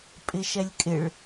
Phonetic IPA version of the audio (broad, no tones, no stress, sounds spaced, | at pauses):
pʼ ɪ ʃ ɛ lʲ kʼ ɪ ɭ